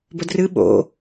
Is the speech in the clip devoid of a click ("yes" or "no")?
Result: yes